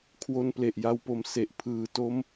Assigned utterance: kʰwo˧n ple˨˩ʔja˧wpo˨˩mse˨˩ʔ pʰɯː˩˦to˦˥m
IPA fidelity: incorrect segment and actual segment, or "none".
none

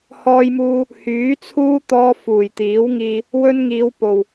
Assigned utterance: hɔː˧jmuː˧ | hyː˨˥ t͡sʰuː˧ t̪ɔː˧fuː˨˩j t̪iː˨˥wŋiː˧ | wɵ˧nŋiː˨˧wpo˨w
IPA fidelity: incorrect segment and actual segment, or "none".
none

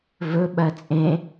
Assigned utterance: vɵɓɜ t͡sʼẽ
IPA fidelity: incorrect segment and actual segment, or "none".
none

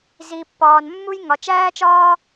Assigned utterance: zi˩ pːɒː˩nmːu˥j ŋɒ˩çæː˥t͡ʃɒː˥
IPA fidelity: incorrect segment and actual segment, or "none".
ç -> t͡ʃ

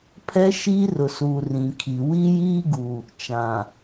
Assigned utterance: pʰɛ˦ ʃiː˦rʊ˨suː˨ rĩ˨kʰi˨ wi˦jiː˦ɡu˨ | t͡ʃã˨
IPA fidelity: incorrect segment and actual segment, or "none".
none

